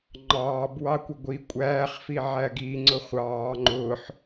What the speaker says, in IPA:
ŋ͡ǃ ɑː b w ɑ kʷ ʌ ɡʷ i kʷʼ æː χ f i ʕ æ ɡ i ŋ͡ǀ ʊ χʷ ɑː ŋ͡ǃ ʊː ħ

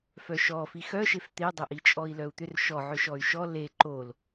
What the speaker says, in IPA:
f œ ʃ ɔ f i x œ ʃ e f t̪ e dˤ œ ʔ i t͡ʃʼ ɔ i̯ l œ u̯ t̪ ʏ r ʃ ɔ ʕ ʏ ʃ ɔ y̯ ʃ ɔ l e ǃ o l

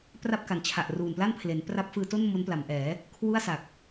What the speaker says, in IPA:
p r a˥˩ p̚ k a˩˦ n t͡ɕʰ a˨˩ ʔ r uː˨˩ n p l a˥˩ n pʰ l e˩˦ n p r a˦˥ p̚ f ɯː˧ t o˥˩ n m o˦˥ n p l a˩˦ m ʔ ɛː˩˦ | kʰ w u˥˩ a̯ s a˨˩ k̚

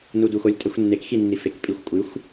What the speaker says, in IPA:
n u d u x o lʲ tʼ ɛ xʷ nː e k x i nː i f e k pʼ i xʷ kʷʼ ɨ xʷ

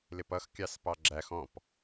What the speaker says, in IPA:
l ɪ p ʌ x kʲ ɑ s p ɑ ɡ͡ǁ æ x ɔ̃ p

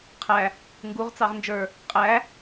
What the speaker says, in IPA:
qʰ æ | ŋ ɡ u ʁ t͡s ɑ ʁ n d͡ʒ ə˞ | qʼ æ

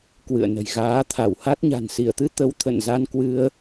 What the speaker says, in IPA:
k w ɨ̰˧˨ ə̯ n ə̤˨˩ j ɣ aː˨˦ t̪ʰ a˧˩ w h a˦˥ t̚ ɲ a̤˨˩ n s i˧˩ ə̯ t̪ ɨ˧ t̪ ə˨˦ w t̪ʰ ə̰˧˨ n z a˧ n k w ɨ˧ ə̯

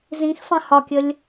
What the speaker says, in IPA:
z ĩ x f ɑ̃ h ɒ kʲ ə lʲ

